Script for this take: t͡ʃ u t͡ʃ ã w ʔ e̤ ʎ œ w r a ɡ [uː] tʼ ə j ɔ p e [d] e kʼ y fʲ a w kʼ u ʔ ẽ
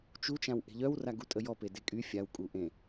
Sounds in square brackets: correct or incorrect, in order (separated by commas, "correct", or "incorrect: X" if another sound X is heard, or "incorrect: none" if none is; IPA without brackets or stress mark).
incorrect: u, correct